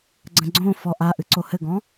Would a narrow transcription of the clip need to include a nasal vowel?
yes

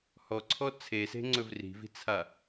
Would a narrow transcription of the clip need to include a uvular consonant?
no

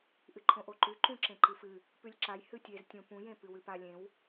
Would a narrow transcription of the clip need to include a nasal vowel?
yes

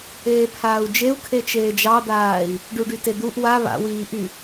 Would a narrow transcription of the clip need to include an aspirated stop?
yes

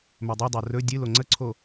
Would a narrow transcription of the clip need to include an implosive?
no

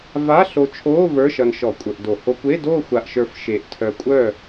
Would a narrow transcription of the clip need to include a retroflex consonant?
no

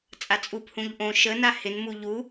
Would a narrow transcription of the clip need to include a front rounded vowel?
no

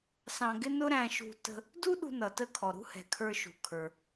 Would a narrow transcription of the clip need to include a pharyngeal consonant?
no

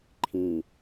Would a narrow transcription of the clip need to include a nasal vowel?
yes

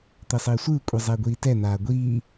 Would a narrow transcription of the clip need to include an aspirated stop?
no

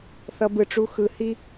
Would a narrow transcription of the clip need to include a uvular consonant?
no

